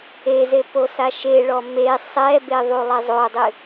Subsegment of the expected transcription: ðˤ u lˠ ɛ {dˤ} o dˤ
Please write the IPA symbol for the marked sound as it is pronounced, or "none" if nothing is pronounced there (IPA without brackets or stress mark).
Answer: zˤ